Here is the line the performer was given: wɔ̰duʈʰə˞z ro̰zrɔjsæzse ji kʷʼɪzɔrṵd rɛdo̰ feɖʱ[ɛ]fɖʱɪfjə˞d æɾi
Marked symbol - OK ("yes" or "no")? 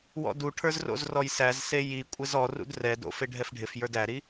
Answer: yes